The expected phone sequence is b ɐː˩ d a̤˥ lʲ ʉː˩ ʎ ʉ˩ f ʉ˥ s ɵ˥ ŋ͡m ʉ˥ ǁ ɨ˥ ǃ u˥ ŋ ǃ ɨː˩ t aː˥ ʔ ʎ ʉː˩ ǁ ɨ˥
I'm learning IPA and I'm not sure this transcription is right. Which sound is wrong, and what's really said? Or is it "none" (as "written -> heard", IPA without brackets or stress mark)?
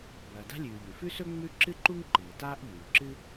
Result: none